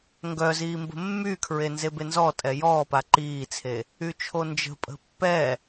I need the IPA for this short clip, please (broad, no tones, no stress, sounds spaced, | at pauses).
ŋ ɡ œ z iː m b ə̤ mː y kʰ ɹ e n z e b e n z ɔ tʼ ɛ j ɔː p a ǃ iː t͡sʰ e | y t͡ʃʰ o n d͡ʒ ə̤ pʼ ə̤ pː ɛ